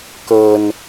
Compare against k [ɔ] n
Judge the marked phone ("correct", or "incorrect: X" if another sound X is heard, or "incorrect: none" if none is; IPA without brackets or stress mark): incorrect: ɤ